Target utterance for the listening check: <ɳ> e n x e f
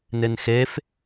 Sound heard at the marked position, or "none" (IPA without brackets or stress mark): n